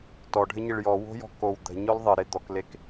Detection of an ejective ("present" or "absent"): absent